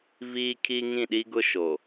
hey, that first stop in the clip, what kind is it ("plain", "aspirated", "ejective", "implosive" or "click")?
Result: aspirated